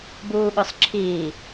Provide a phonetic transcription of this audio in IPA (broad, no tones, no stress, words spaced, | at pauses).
buːɠʊsˤǁʰiː